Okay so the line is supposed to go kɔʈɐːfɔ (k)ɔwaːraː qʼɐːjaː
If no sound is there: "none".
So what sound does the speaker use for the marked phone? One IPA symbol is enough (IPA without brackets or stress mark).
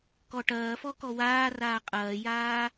k